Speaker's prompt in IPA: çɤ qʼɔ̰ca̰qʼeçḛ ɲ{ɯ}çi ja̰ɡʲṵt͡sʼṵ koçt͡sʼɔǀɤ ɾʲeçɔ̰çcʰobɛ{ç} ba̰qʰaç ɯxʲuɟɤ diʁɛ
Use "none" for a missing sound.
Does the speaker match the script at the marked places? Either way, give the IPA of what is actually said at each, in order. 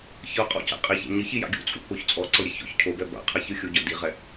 ɯ, none

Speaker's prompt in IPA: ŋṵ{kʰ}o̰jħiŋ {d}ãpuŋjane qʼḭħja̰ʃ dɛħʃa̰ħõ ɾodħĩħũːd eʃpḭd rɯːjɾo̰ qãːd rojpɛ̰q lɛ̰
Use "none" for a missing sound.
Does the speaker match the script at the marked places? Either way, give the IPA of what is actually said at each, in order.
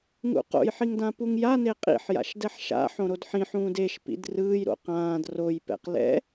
q, d

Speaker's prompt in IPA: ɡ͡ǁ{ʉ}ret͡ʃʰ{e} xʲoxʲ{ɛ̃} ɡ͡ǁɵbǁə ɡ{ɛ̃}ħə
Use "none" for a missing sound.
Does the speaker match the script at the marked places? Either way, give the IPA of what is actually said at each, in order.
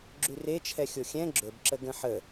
ʉ, ɛ, ɛ̃, ə̃

